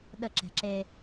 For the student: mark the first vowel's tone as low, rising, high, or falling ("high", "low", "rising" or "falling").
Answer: falling